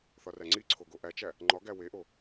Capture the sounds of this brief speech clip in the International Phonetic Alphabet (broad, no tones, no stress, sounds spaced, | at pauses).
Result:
θ ɒ r æ ŋ͡ǀ i ǀʰ o ɡ o ʔ æ t͡ʃ æ | ŋ͡ǃ ɒ ɡ æ w e ʔ o